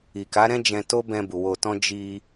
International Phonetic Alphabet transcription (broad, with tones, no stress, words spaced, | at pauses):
i˨ka˨˦ɾɛ̃˦ d͡ʒɛ̃˧ to˦bɛ̃˧bu˨ wo˧tɔ̃˦ d͡ʒi˧